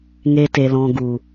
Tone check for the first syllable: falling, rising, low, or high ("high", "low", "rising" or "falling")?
high